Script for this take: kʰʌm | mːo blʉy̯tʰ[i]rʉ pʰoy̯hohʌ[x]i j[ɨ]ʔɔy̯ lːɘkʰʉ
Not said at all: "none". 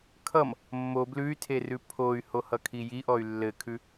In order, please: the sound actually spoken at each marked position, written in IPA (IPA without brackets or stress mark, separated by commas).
e, kʰ, i